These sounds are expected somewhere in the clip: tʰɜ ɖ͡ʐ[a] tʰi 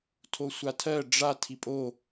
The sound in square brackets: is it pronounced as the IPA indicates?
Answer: yes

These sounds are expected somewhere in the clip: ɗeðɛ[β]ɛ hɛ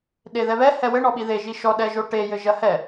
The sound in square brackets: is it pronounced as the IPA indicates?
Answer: yes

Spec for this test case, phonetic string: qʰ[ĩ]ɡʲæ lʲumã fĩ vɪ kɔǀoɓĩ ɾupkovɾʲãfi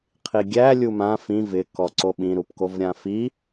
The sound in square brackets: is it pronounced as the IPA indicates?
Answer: no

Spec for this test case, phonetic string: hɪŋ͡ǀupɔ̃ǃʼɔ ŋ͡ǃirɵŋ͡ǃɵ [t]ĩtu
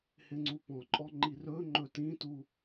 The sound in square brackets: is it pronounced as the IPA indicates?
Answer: yes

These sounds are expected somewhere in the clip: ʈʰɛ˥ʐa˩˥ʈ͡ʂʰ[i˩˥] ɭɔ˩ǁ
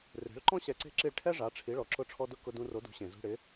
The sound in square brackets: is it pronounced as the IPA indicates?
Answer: yes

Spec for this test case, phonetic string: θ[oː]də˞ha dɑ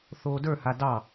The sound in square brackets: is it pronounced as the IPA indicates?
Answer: yes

